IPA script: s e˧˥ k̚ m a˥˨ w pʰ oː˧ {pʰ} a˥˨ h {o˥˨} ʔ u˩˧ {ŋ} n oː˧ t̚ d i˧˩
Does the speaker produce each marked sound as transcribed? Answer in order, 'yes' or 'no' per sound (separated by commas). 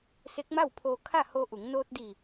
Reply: no, no, yes